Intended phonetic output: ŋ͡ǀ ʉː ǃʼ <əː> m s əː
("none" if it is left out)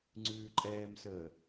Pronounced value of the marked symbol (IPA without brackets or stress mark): ɛː